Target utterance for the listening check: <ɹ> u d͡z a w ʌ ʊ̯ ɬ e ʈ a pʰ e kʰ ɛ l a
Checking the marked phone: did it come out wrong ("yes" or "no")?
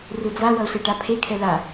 yes